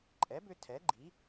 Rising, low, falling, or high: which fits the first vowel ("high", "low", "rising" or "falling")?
rising